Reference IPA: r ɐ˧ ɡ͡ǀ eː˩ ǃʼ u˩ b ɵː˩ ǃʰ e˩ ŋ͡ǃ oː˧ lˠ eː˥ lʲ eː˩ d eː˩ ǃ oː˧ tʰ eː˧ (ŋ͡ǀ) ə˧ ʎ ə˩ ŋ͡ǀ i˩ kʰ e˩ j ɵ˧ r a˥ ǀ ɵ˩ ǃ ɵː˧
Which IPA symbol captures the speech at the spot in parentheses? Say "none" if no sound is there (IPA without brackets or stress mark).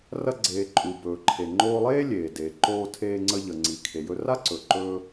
ŋ͡ǀ